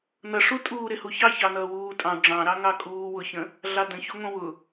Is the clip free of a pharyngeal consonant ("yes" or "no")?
yes